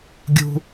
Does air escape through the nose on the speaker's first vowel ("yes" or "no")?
no